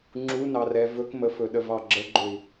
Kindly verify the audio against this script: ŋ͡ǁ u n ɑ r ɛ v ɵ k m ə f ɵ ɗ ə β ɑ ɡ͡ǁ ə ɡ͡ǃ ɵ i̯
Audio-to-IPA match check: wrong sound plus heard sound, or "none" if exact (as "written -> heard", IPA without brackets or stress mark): β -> v